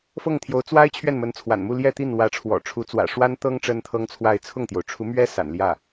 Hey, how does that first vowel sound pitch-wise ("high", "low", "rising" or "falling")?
falling